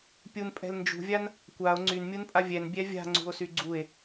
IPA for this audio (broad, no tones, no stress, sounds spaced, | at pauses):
pʲ u n pʼ ɛ̤ l n d͡ʒ ṳ vʲ a n | kʷ a o̯ ŋ͡ǀ y n mʲ u n pʼ a vʲ ɛ n bʲ ɛ vʲ a̤ ŋ͡ǀ ṳ o̯ s y ɡ͡ǀ u e̯